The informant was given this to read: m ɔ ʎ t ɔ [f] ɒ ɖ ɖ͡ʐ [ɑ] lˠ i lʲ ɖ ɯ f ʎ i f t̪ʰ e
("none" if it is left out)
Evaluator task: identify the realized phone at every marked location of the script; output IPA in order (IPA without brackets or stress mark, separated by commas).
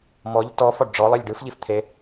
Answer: f, ɔ